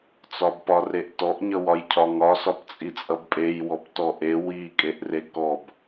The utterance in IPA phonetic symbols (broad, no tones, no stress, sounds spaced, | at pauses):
t͡s ɒ b p ɒ r e ʔ t ɔ ʔ ɲ ʌ w ɒ j cʰ ɒ ŋ ɒ s ɒ p t͡sʼ i t͡sʼ ʌ b pʼ e j w ɔ p t ɔ ʔ e w i kʼ e ʔ r e k ɔ b